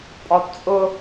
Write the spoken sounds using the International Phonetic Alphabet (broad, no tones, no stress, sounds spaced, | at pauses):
pʼ ɒ d t͡sʼ ʊ